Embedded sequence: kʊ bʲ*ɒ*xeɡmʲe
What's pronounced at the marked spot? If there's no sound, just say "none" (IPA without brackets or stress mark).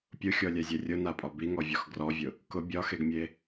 ɒ